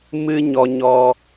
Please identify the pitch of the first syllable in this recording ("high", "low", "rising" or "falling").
high